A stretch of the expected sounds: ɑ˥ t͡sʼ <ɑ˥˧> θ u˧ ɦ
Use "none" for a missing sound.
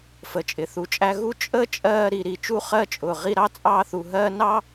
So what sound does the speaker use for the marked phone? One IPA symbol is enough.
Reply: ɑ˥˧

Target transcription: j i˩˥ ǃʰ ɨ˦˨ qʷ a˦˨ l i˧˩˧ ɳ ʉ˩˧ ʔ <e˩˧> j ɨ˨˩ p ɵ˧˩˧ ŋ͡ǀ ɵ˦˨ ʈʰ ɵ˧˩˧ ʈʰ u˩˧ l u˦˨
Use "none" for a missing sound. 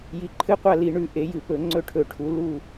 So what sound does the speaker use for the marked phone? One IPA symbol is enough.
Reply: e˩˧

